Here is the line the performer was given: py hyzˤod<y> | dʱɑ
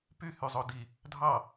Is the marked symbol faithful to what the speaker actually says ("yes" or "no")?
no